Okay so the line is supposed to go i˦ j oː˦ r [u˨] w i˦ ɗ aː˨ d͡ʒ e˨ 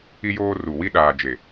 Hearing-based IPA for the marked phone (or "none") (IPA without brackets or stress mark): u˨